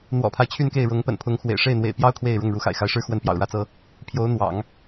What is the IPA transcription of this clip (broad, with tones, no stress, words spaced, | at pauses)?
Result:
n̪wɔ̰˨˩pʰa˦ɪ̯ t͡ɕʰy˥˧nke˥˩ɪ̯ɻʊ˧˥ŋ pə̰˨˩npʰʊ˧˥ŋxwḛ˨˩ɪ̯ ʂe˥˩ɪ̯n̪wḛ˨˩ɪ̯pjɑ˥ʊ̯ kʰwe˥˧ɪ̯ɻʊ˥˩ŋ ɻu˧˥xa̰˨˩ɪ̯xa˧˥ɪ̯ʂɻ̩˥ xwə˥˩npjɑ̰˨˩ʊ̯ɻä˥t͡sɤ˥ | pʰjo˧˥ʊ̯n̪wɑ̰˨˩˦ŋ